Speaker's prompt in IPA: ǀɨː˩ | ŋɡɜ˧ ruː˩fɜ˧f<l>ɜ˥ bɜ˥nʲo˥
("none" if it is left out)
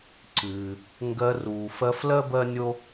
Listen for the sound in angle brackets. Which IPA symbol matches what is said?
l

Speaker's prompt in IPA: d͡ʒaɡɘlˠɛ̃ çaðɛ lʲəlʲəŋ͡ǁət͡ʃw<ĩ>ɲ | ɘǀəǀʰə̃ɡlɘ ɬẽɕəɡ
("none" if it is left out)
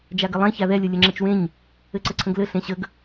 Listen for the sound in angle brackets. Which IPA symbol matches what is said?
ẽ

